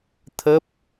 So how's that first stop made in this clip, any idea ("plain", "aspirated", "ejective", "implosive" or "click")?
aspirated